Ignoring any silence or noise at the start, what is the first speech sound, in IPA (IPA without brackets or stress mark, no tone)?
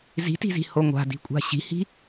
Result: z